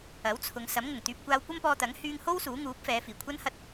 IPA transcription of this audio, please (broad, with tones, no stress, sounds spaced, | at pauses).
ɐ˨˥ w t͡sʰ ʊ˨˧ ŋ s ɐ˨˥ m ŋ ʊ˨˩ ŋ t̪ yː˧ p̚ kʷ aː˧ w kʷ ɐ˥ m p ɔː˧ t̪ ɐ˨˥ ŋ h yː˧ ŋ h o˥ w s uː˨˥ ŋ uː˨˥ p̚ f ɛː˨˧ f iː˨˩ kʷʰ ɐ˥ n h ɐ˧ t̚